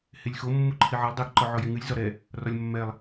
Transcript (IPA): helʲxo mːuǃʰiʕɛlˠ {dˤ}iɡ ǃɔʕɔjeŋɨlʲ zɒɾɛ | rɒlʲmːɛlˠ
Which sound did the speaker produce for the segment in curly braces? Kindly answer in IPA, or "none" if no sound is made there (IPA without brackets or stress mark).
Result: dˤ